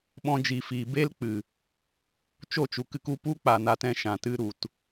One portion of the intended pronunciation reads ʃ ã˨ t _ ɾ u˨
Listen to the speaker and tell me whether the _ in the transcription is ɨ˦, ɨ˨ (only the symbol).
ɨ˦